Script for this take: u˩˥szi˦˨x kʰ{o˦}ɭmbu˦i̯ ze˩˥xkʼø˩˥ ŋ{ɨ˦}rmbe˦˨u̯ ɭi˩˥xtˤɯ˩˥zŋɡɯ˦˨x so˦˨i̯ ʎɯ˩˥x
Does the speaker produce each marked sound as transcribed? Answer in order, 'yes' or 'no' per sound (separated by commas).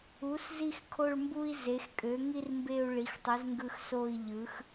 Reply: no, no